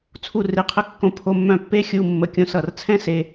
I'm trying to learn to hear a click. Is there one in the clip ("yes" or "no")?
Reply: no